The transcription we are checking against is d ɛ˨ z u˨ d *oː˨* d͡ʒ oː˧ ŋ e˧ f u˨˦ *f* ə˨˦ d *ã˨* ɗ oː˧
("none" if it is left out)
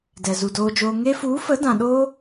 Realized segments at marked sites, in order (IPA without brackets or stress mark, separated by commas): oː˧, f, ã˨